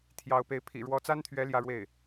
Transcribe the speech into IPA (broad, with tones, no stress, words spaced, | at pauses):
t̪ʰjɑ˧˥ʊ̯pe˧˥ɪ̯ pʰḭ˨˩ɻwɔ˧˥t͡sa˥nt̪ʰɥɛ˧˥ ljä˥˧ɻwe˥˩ɪ̯